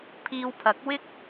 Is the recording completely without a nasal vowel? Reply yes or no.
yes